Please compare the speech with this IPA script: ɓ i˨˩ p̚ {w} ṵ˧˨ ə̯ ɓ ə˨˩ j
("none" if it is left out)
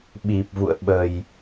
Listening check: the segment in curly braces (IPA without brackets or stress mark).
v